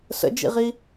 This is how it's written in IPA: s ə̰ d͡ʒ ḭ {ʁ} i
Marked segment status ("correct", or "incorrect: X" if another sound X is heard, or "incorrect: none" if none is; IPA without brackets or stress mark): correct